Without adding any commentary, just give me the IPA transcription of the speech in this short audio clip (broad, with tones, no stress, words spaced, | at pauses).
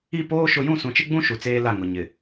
i˦˨ poː˦ ʃʊ˦ jũ˦˨sũ˨t͡ʃɪ˦ɡ͡bũ˦ ʃu˨t͡seː˦la˦˨ ŋʊ˨ɲɪ˨